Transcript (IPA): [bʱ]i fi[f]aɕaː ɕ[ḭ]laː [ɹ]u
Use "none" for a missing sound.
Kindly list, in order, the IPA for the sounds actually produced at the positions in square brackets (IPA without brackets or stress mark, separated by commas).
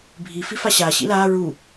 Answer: bʱ, f, ḭ, ɹ